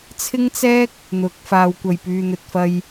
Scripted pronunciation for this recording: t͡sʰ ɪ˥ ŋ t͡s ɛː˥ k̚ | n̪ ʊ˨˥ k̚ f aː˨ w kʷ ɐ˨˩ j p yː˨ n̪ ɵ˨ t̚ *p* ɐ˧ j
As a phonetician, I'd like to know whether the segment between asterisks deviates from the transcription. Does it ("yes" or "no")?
yes